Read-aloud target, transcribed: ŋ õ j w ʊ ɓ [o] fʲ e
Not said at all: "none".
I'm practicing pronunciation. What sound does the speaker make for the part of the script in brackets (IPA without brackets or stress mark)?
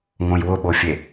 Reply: o